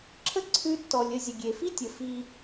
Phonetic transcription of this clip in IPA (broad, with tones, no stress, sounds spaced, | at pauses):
ǁʰ ə˦ ǀʰ ʉ˧ tː ɔ˨ lʲ ə˦˨ zʲ ə˨ ɡʲ e˨ f i˦ tʲ ə˨ f i˦